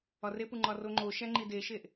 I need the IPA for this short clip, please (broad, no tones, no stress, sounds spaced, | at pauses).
ɒ r e p u ŋ͡ǃ ɒ r o ŋ͡ǃ o ʃ æ ŋ͡ǃ i d e ʃ e ʔ